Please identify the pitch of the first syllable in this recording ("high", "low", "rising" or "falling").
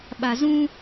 low